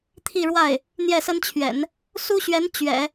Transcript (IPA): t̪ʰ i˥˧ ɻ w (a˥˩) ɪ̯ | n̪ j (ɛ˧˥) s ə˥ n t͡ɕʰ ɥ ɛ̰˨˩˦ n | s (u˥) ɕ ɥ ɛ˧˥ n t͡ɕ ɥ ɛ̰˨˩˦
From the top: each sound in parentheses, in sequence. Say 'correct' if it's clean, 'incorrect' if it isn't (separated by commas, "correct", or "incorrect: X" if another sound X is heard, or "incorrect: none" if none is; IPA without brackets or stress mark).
correct, incorrect: ɛ˥˩, correct